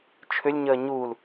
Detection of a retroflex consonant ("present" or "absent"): absent